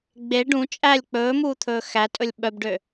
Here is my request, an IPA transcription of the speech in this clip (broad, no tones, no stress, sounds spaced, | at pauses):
ɡ͡b e ɖ ũ t͡ʃʼ æ lʲ k͡p ɵː m uː t̪ʰ ɵː x æ tʼ ɵ lʲ ɓ œ b ɖ ø